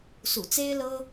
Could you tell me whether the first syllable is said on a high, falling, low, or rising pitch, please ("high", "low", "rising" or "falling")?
low